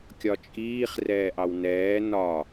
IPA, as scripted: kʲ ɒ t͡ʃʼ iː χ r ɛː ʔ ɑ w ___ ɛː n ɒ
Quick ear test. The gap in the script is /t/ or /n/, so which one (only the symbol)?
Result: n